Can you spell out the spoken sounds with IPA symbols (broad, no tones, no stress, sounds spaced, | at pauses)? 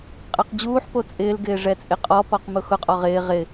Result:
qʼ ɛ q d͡ʑ uː ħ p o t͡sʼ ɪː l ɡ ɪː ʐ ɛ t͡sʼ ɪ qʼ ɔ p ɔ q m ʊ x ʊ qʼ ɔ ʁ ɪː ʁ ɪ